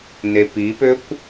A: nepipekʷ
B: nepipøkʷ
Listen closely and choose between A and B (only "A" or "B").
B